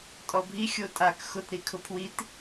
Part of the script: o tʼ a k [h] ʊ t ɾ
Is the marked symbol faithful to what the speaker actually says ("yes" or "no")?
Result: no